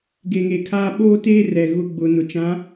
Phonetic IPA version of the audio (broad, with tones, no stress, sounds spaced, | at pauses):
ɡ e˨ ŋ e˨ kʰ aː˦ ɓ oː˦ t eː˦ r ɛ˨ ɣ ʊ˦ ɡ͡b ʊ˨ n ʊ˨ t͡ʃ ã˨˦